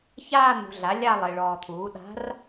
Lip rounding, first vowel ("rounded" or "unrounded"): unrounded